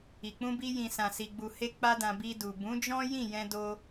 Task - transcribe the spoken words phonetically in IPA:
i˨ k͡p ũ˧ b i˧ j ĩ˨ s ã˨ s i˨ ɡ͡b u˨ h e˧ k͡p a˧ d ã˨ b i˧ d u˨ b ũ˨˦ d͡ʒ ɔ̃˦ j ĩ˦˨ j ɛ̃˧ d o˧

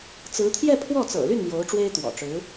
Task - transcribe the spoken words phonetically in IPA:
t͡s ɹ̩˧˥ t̪ʰ j ɛ˥˧ pʰ w ɔ˥˩ t͡s ɤ̰˨˩ l y˥˩ n m j o˧˥ ʊ̯ ʈ͡ʂ w e˥ ɪ̯ t̪ w ɔ̰˨˩ ʈ͡ʂ ɻ̩˧˥

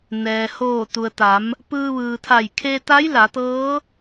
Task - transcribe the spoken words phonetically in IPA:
n ɛː˩ h oː˧˩ t̪ u˩ ə̯ t̪ a˩˧ m | p ɯː˧ ʋ ɯː˩ t̪ʰ a˧˩ j kʰ e˧ t̪ a˧˥ j l a˩˧ t̪ ɤː˧˥

